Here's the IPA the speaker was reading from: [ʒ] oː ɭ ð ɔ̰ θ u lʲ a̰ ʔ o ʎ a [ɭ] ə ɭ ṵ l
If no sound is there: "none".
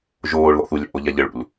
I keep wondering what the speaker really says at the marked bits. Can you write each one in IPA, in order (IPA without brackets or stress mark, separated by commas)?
ʒ, ʎ